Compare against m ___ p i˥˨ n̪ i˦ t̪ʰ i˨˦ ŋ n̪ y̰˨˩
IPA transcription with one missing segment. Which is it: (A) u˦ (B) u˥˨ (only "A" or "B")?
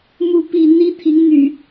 B